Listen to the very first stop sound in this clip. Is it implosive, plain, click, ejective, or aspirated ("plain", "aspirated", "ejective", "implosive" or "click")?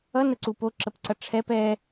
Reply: click